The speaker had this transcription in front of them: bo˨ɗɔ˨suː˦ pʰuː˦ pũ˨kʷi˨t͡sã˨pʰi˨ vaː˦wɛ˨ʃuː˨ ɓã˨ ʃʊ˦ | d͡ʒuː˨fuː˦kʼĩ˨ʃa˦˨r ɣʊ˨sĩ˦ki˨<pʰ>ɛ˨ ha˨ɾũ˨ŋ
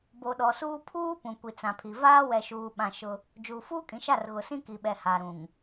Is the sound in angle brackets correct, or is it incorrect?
incorrect: ɓ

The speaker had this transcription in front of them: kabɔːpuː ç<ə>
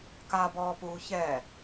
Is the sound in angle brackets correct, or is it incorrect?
incorrect: ɛ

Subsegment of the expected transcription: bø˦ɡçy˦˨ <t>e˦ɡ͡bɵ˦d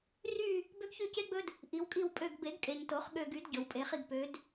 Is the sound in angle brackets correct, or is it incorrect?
incorrect: c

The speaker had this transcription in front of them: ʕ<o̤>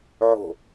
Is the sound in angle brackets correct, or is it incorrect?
correct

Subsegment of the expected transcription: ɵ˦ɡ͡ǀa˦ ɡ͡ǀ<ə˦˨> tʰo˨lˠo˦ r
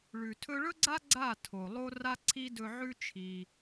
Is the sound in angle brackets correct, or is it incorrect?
incorrect: a˦˨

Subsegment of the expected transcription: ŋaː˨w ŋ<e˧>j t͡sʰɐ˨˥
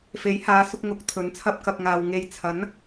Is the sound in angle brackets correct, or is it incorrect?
incorrect: e˨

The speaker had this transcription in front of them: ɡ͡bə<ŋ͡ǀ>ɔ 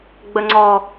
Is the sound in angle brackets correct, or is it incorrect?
correct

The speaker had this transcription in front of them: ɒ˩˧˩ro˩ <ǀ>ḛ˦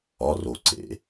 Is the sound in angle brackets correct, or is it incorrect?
correct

